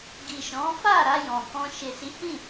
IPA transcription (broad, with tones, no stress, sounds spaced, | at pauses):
ɡ i˨ ʃ ɔ̃˨˦ f a˦˨ ɾ a˧ j ɔ̃˨ k ɔ̃˧ ʃ e˨ s i˨˦ h ĩ˦˨